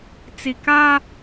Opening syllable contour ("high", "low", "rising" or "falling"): low